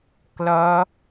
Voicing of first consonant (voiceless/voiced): voiceless